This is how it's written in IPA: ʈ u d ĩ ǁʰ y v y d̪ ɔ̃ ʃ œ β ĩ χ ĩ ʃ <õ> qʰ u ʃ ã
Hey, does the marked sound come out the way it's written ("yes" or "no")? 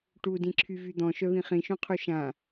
yes